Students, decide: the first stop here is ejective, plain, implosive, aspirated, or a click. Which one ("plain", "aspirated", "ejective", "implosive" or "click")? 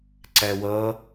click